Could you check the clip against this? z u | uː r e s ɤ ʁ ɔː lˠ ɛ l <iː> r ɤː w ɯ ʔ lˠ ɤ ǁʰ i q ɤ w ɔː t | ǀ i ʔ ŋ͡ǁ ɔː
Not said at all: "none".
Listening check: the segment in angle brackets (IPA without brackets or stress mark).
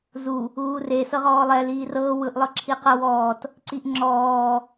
iː